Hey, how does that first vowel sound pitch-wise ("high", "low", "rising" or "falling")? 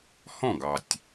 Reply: falling